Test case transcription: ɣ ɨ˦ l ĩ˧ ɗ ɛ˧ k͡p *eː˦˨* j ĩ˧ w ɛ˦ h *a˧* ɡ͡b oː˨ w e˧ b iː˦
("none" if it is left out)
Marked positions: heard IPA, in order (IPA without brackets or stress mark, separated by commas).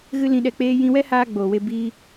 eː˦, aː˧